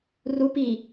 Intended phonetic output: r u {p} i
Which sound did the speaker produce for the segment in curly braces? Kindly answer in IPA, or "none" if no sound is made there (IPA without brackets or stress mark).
p